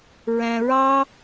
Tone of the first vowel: low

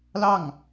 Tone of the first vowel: falling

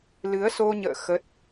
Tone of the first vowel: rising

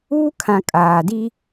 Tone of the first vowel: high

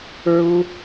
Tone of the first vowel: high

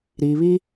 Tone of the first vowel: low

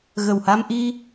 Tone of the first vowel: low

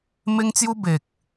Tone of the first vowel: high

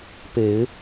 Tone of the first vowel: rising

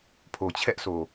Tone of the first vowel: low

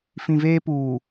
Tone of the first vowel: low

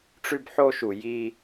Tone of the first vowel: high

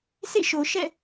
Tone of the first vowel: falling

